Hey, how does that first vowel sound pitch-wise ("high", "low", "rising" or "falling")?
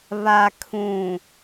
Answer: low